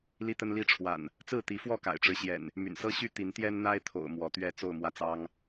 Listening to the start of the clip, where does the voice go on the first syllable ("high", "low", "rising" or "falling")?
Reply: high